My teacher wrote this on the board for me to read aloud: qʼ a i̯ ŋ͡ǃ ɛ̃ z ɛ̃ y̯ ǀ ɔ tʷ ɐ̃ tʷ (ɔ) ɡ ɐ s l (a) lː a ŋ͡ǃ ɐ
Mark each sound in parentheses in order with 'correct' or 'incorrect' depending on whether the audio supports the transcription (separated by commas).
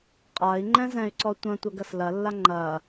incorrect, incorrect